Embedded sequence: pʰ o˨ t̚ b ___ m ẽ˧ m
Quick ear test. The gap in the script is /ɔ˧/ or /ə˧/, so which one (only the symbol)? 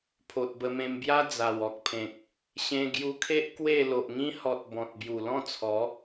ə˧